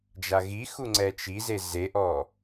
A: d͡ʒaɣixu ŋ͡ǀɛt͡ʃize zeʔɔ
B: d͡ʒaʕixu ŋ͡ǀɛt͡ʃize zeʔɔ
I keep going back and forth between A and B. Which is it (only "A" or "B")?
A